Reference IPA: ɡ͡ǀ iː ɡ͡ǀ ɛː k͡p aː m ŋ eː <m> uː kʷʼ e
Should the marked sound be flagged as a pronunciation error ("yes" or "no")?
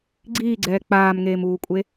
no